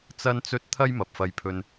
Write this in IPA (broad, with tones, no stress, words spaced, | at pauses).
t͡sɐ˥nt͡sɵ˥t̚ t̪ʰɐ˥jmɐ˨p̚fɐ˧jpʰɵ˧n